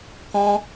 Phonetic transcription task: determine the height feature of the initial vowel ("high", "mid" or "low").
mid